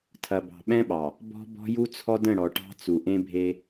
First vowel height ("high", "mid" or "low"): low